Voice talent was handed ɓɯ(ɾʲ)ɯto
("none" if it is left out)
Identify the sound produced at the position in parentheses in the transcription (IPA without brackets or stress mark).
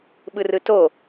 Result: r